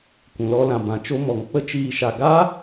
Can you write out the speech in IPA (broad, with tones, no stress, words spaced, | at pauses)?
kʷũ˨lɔ˧lã˨ bã˨t͡ʃo˧ mɔ˨ŋ k͡pə˦t͡ʃiː˧ʃa˧ ɡaː˦